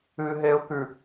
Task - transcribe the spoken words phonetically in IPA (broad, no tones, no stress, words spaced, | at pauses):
ɨɦeʊ̯kʉ